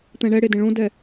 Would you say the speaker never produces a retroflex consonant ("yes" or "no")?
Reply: no